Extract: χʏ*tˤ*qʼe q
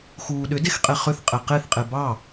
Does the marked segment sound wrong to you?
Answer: yes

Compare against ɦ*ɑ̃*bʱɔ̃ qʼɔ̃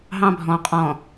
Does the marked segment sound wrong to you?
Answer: no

